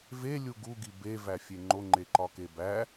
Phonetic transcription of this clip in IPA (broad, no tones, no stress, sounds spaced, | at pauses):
v e lʲ u ɡ u ɡ i b e v æ fʲ e ŋ͡ǃ o ŋ͡ǃ e ǃ ɒ k e b æ